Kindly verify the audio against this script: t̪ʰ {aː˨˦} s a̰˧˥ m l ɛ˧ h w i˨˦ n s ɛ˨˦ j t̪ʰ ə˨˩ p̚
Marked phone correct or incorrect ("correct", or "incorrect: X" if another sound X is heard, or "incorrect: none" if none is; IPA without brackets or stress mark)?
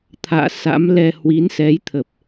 incorrect: a̰ː˧˨